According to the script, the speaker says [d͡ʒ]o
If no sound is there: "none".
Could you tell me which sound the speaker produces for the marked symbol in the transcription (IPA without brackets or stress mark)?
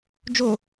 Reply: d͡ʒ